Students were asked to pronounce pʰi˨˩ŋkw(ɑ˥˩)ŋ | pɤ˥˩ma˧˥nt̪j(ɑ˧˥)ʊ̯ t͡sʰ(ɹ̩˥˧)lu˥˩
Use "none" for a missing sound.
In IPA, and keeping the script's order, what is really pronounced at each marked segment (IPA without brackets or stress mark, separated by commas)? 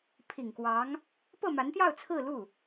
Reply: ɑ˧˥, ɑ˥˧, ɹ̩˥˧